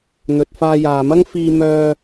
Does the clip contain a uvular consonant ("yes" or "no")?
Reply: no